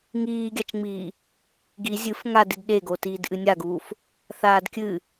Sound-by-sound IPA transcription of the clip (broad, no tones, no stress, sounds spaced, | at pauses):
ŋ iː ɡʲ a t͡ʃ ŋ͡m iː | ɡ i zʲ ɨ f ŋ a d i d ɗ e ɡ o t iː d ʔ ɨ nʲ a ɡ uː f | θ aː d kʲ ɨ